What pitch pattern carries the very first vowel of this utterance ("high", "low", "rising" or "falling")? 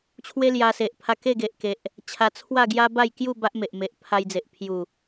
high